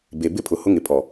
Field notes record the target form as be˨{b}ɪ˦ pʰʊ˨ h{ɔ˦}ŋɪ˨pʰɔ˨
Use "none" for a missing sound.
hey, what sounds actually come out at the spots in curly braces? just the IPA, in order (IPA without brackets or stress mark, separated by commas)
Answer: b, ʊ˦